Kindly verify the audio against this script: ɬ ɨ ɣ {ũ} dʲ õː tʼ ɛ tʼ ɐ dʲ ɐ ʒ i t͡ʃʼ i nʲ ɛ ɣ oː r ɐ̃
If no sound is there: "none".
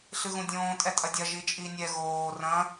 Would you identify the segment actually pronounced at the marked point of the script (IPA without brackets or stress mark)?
ũ